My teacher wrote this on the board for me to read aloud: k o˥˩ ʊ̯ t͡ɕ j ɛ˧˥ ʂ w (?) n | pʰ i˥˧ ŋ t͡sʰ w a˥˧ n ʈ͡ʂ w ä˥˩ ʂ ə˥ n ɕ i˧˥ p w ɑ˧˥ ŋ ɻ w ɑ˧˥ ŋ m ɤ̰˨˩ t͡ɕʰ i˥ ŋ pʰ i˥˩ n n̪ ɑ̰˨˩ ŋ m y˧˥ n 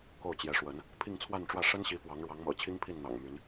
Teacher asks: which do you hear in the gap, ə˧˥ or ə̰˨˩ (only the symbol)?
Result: ə˧˥